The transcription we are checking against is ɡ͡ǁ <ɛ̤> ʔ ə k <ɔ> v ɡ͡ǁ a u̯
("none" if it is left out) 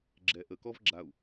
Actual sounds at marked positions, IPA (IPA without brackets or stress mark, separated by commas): ɛ, ɔ